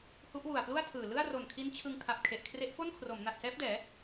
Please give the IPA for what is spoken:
h u˦˥ ʔ w u˨˩ a̯ p l u˥˩ a̯ tʰ ɯː˨˩ l ɯ˥˩ a̯ r o˨˩ n kʰ i˦˥ n t͡ɕʰ ɯ˧ ŋ kʰ a˨˩ p̚ kʰ e˨˩ ʔ kʰ r e˦˥ ʔ f o˥˩ n kʰ r o˩˦ m n a˨˩ t̚ s ɛː˦˥ p̚ d ɛː˩˦

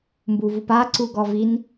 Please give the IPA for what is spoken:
m b u v u p a ǀ u ɡ ɔ v i n

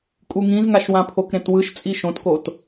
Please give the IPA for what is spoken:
kʼ u ŋ ĩ z ŋ a ʃ w ã pʰ o k ɾ ẽ t w ɯ ʃ t͡sʼ i ʃ õ t k o t

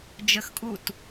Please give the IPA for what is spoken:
d͡ʒ ə x kʼ u t

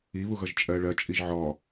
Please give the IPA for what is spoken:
i β u ɣ ʌ ʒ t͡ʃʼ ɜ ɭ ɜ t͡ʃʼ i ʒ ʕ ɔ

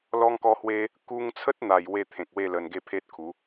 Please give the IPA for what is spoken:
l ɔ˧ ŋ k ɔ˧ h w e˧ | k u˧ ŋ t͡sʰ ə˦ t̚ n̪ a˨˩ j w e˥˧ t̪ʰ ẽ˨ k̚ w e˥˧ l ə˨˩ n ɡ e˥˧ pʰ e˦ t̚ kʰ u˨˦

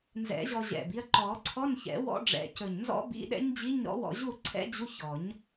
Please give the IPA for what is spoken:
n z ɛ̰˨˩˦ ʑ ɔ˧ ʑ ɛ̰˨˩ b i˧ ɐ̯ ǃ ɔ˨˩˦ ǀʰ ɔ˧˥˧ n ç ɛ̰˨˩˦ w ɔ̰˦˥ ɖ͡ʐ ɛ̰˨˩˦ c ɵ˨˩ ɲ n z ɔ̰˦˥ b ḭ˧˥˧ ɗ ɛ̰˦˥ ɲ d͡ʑ i˧˥˧ ɲ ɾ ɔ̰˦˥ w ɔ̰˧ ʑ u˥˨ ǀʰ ɛ̰˦˥ d͡ʑ u˧˥˧ ç ɔ˨˩˦ ɲ

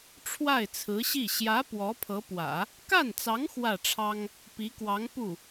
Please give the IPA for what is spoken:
ʈ͡ʂʰ w a˥˩ ɪ̯ t͡sʰ ɹ̩˧˥ ɕ i˥˩ ɕ j ä˧˥ p w ɔ˧˥ pʰ ɤ˧˥ p w ä̰˨˩˦ | k a˥˩ n t͡s ɑ˧˥ ŋ x w ä˥˩ ʈ͡ʂʰ ɑ˥ ŋ | p i˧˥ k w ɑ˧˥ ŋ p u˥˩

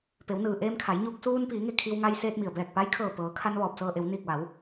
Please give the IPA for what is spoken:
p e˩˧ w n ɯː˩ ʔ eː˧ m kʰ a˩˧ j ɲ uː˧ k̚ s uː˧ n p iː˩˧ ŋ e˧˩ kʰ i˧ w ŋ a˧ j s eː˧ t̚ m i˩ ə̯ b ɛː˧˩ k̚ p a˧˥ j kʰ ɤː˧˩ p ɤː˩˧ kʰ a˧ n ʋ ɔː˧˩ p̚ s ɤː˧ ʔ e˩˧ w n iː˧˩ k̚ ʋ a˩˧ w

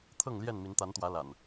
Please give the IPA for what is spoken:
t̪ʰ ɤ˥˨ ŋ l j ɛ˥˨ n m i˨˦ n t̪ a˨˦ n t̪ w ä˨˦ l a̰˨˩ n

